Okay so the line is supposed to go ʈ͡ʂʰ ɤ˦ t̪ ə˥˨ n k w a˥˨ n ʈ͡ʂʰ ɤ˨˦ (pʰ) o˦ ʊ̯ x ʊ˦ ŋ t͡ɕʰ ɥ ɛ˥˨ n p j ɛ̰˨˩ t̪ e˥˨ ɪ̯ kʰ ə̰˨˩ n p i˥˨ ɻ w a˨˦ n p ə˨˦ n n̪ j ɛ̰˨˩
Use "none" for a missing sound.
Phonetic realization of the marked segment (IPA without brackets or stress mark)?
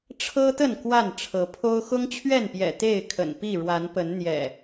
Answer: pʰ